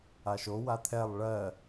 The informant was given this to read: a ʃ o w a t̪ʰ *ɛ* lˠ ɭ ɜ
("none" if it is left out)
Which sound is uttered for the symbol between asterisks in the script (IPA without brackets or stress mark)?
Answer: ɛ